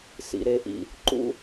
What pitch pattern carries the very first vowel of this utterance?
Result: low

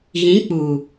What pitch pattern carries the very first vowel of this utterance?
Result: rising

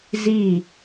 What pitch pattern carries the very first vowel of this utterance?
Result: falling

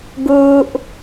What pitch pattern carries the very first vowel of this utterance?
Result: high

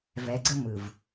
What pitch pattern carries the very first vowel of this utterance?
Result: low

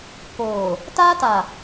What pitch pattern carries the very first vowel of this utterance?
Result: low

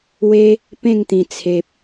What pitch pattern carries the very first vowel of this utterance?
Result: high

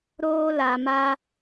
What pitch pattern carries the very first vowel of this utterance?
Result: high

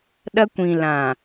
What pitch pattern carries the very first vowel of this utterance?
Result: high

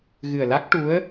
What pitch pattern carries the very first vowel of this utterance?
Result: low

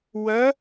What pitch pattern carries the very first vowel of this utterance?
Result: rising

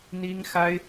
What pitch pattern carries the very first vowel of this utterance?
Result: high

